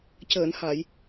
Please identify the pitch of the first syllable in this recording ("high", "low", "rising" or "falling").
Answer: low